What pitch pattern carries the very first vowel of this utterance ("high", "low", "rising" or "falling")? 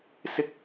high